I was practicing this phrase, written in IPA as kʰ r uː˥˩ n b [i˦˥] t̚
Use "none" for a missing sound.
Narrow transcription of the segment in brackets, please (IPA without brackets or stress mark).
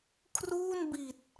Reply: i˨˩